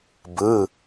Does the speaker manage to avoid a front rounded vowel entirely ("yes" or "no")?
yes